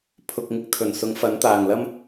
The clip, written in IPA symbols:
pʰ ʊ˧ k̚ ŋ ɪ˧ k̚ t̪ʰ ɵ˨˩ n s ʊ˨˥ ŋ f ɐ˨˥ n t̪ aː˨˩ ŋ l ɐ˥ m

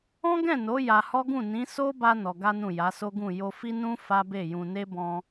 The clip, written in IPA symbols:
ɔ̃˦ ɡ ɛ̃˦˨ n o˨˦ j a˧ h ɔ˦ ɡ ũ˦˨ n ĩ˨˦ s o˦ b a˧ n ɔ˧ ɡ a˦ n ũ˦˨ j a˨˦ s o˦ ɡ ũ˦˨ j o˧ f i˦ n ũ˦ f a˦ b e˦˨ j ũ˧ n e˦ b ɔ̃˧

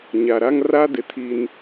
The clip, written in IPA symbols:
ɲ a˨ ɾ a˦ ŋ r a˦ d ɪ˨ tʰ i˦ n

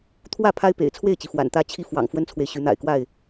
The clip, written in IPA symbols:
t̪ʰ w ä˥˨ pʰ a˦ ɪ̯ p ḛ˨˩ ɪ̯ t͡sʰ w e˥˨ ɪ̯ t͡ɕ i˩ f w a̰˨˩ n t̪ ä˥˨ t͡ɕʰ i˦ f w ɑ̰˨˩ ŋ f w ə˦ n t͡sʰ w e˨ ɪ̯ ɕ y˨˦ n̪ a̰˨˩ ɪ̯ k w a˥˨ ɪ̯

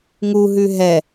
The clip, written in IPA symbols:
ŋ u ɦ ʉ ɦ ɛ

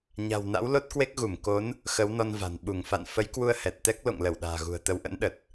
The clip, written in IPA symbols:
ɲ a̤˨˩ w n a̰˧˥ w l o˦˥ t̚ k w e˦˥ k̚ ɣ u˧˩ m k o˨˦ n | x ə˨˦ w n ɔ˧ n v a̤˨˩ n ɓ u˧˩ ŋ f a̰˧˨ n f ə˨˦ j k w u˧ ə̯ h ɛ˨˩ t̚ t̪ ɛ˦˥ k̚ l o̰˧˨ ŋ l ə˧˩ w ɗ a̤ː˨˩ ɣ ṳ˨˩ ə̯ t̪ ə˧ w ʔ ə̰˧˥ n ɗ ə˨˩ t̚

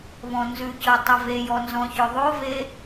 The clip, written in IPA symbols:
β ɔ̃ n z ʉ c ɤ tˤ ʊ v e j ɔ n z ɔ̃ ç ʊ ðˤ o v e

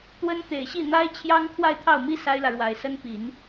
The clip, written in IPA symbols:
t̪ w ə˥ n t̪ e˨˩ ɪ̯ ɕ i˥˩ n̪ a˥ ɪ̯ t͡ɕʰ j ɑ˥ ŋ t̪ʰ w a˥˧ ɪ̯ t̪ʰ ɑ˥˩ ʊ̯ m i˥ s a˥ ɪ̯ l ä˨ ɻ w a˨˩ ɪ̯ s ə˥ n p i˨˩˦ n

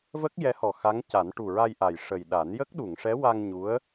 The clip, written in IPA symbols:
v ə˦˥ k̚ j ɛ˧˥ h ɔ˨˩ x a˧˥ ŋ c a˨˩˦ n ʈ u˨˩ ɹ a˧ j ʔ a˨˩ j ʂ ə˨˩ j ɗ a˨˩˦ n j ə˦˥ k̚ ɗ u˨˩˨ ŋ ʂ ɛ˧˥ w a˧ ŋ ɲ u˧˥ ə̯

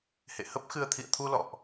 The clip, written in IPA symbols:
h ḛ˧˨ h ə˦˥ p̚ x ɨ˧ ə̯ t̪ʰ ḭ˧˨ ə̯ t̪ʰ u˧ l ɔ̰˧˨ ʔ

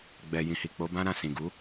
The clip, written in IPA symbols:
ɡ͡b ɛ˨ j ĩ˨ h i˨ k͡p o˨˦ b ã˦ ɾ ã˦˨ s ĩ˨ ɡ u˨˦

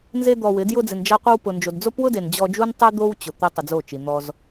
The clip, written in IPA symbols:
n z e˦ d̪ ɔ˧ w ɪ˨˦ d j ʊ˧ d͡z ɪ˨ n d͡ʒ a˧ qʷ i˧ w p ʊ˨ n d͡ʒ o˨ d d͡z o˦ p w ʊ˦ d e˨ n d͡ʑ ɔ˧ d͡ʒ u˦ n tˤ ɛ˦ d̪ o˦ w t͡ɕ ʊ˨ t̪ e˦ tˤ ʊ˧ d͡z o˦˨ t͡ʃ i˨ n̪ ɔ˧ z

